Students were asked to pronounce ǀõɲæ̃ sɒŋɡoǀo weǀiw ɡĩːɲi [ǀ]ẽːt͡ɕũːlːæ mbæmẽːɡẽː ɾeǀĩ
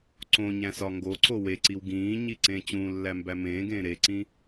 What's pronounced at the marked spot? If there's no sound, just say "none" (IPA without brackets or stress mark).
ǀ